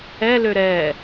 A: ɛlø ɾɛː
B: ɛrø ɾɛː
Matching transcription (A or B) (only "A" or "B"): A